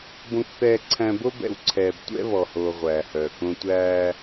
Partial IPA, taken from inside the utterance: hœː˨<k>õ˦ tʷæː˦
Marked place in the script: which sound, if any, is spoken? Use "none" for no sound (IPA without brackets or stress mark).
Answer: k